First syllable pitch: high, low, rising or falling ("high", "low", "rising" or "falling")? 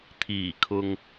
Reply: low